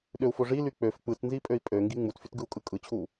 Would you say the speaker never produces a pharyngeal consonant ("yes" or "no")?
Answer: yes